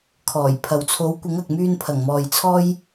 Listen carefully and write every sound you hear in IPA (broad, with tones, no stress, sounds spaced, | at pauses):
kʰ ɔː˨˩ j pʰ ɐ˨ w t͡sʰ o˨˥ w kʷ ɪ˨˥ ŋ ɐ˨ k̚ m yː˧ n pʰ ɐ˨˩ ŋ m ɔː˨ j t͡sʰ ɔː˥ j